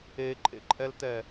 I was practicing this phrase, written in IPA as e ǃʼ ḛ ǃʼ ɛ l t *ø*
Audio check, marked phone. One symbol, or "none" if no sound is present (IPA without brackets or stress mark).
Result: ɛ